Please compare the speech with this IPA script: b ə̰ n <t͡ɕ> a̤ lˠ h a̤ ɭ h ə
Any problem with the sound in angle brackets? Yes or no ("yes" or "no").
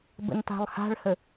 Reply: yes